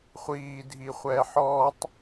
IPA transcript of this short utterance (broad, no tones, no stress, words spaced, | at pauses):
χʷiː dʱiχʷɛːħɔːtˤ